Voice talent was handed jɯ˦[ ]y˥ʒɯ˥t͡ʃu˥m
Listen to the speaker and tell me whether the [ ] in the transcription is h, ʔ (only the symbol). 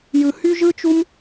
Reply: h